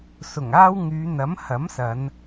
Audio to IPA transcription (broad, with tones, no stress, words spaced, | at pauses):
sʊ˨˩ŋaː˥w ŋyː˨˧n̪ɐ˨˥mhɐ˨˥msɐ˨˧n